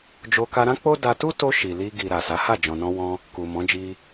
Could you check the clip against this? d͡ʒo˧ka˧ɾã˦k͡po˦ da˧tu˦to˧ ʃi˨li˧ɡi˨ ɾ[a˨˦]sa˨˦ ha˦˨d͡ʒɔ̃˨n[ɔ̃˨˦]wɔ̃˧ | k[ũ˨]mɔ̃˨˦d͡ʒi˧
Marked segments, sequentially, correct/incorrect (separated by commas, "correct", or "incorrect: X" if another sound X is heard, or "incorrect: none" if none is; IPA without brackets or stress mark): incorrect: a˨, incorrect: ɔ̃˧, incorrect: u˨